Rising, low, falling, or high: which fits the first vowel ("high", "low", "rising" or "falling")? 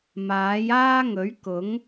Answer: rising